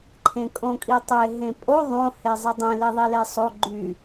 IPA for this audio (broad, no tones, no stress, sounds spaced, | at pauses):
ǃʰ ẽ kʼ õ kʼ i tˤ e ɦ ẽ pʼ o ðˤ õ h e zˤ i dˤ ẽ l i ðˤ i l e sˤ o ɡ͡ǃ y